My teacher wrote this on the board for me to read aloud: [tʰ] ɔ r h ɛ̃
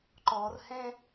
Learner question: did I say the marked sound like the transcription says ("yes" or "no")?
no